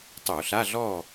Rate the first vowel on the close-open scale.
mid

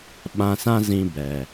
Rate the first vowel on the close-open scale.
open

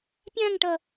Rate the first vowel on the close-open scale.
open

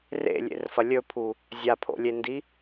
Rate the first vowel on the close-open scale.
mid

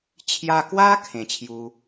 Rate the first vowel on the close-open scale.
open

